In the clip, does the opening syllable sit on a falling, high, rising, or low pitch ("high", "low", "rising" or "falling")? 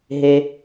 low